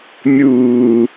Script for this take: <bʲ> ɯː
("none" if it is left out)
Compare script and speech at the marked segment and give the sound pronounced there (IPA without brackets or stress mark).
mʲ